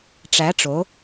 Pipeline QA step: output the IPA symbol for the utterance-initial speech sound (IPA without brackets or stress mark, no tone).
ʈ͡ʂ